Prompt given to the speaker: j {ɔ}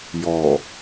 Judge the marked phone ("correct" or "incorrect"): correct